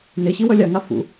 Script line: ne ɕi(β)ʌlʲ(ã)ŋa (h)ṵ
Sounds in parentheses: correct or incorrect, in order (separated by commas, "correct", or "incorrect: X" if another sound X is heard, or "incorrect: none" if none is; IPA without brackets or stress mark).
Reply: incorrect: w, incorrect: a, incorrect: f